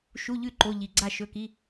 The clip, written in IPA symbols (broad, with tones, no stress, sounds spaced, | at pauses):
ʃ u˧˥˧ ʎ ʉ˥˨ ǃ o˧˥˧ ʎ i˧˩ ɡ͡ǀ a˥˨ ʃ ɵ˧˥˧ k i˧˥˧